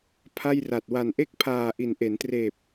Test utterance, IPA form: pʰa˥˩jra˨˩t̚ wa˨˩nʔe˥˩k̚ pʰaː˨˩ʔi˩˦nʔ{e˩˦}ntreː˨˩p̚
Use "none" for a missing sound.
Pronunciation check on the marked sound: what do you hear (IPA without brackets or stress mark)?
e˩˦